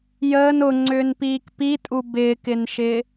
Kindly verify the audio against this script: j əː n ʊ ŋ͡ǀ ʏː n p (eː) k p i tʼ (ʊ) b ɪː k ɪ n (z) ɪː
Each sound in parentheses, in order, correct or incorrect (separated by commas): incorrect, incorrect, incorrect